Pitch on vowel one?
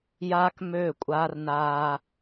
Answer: high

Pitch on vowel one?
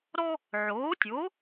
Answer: high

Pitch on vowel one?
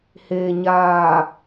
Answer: low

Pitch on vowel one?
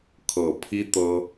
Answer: low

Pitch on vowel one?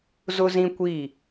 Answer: high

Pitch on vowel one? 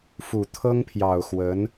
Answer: low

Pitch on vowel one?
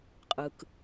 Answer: low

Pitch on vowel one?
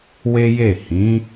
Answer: high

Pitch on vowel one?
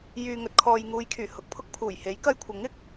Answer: low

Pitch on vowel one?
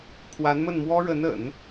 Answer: rising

